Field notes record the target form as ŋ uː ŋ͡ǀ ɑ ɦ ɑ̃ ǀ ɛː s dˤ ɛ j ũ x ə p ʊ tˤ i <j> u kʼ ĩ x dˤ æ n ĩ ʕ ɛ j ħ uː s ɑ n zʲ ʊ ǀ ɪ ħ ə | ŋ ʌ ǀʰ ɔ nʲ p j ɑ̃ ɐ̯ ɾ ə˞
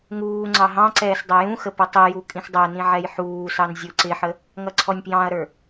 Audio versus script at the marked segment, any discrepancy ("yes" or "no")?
no